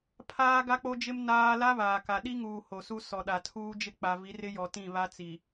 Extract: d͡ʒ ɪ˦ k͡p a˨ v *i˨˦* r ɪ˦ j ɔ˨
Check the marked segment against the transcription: correct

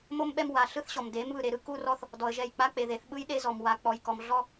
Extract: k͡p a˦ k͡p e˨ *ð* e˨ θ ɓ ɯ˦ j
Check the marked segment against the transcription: correct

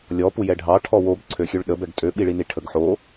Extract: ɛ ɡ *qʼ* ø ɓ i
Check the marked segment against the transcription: incorrect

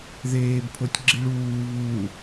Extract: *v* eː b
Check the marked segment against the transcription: incorrect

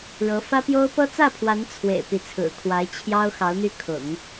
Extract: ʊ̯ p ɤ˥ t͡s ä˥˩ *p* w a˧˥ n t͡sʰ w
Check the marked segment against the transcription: incorrect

